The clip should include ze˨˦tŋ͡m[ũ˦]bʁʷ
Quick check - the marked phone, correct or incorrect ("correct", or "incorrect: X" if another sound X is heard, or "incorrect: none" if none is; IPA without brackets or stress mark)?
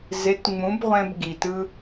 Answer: incorrect: ũ˨˦